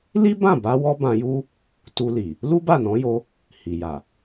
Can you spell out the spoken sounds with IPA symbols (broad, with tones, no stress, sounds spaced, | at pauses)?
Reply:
l i˦ b ã˦˨ b a˧ w ɔ˧ b ã˧ j u˦ | t u˧ l i˨ | l u˦ b a˦˨ n ɔ̃˨˦ j o˧ | h i˨ j a˨